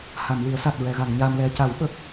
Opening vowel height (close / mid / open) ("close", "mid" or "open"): open